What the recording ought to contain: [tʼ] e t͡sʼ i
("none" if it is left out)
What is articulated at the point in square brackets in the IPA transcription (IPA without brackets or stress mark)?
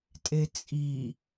tʼ